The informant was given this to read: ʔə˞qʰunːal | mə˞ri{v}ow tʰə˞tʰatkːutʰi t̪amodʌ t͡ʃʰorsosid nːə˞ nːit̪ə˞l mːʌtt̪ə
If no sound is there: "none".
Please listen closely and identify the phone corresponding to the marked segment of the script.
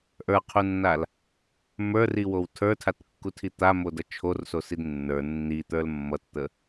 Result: w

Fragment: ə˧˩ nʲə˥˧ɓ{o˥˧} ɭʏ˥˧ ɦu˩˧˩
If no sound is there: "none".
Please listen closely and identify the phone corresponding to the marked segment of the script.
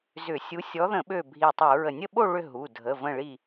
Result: o˥˧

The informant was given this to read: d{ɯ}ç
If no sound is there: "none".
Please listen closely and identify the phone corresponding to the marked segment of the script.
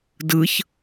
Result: ɯ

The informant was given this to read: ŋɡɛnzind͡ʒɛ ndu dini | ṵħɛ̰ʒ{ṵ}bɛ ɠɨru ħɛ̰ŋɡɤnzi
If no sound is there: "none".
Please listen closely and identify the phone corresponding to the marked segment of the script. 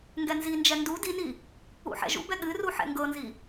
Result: ṵ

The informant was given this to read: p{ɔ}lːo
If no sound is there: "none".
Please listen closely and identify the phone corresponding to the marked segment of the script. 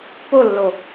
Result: o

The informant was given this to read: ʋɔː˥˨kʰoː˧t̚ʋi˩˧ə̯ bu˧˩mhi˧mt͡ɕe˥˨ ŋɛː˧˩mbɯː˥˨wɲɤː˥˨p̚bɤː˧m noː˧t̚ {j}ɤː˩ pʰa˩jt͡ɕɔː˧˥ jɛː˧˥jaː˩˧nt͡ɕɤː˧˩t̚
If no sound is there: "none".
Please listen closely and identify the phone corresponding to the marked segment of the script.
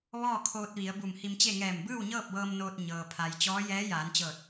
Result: ɲ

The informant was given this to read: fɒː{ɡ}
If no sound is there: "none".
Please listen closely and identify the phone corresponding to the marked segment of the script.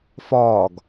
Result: ɡ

